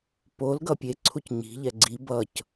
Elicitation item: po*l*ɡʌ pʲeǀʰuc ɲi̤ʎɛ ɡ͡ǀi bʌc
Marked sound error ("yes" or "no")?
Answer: no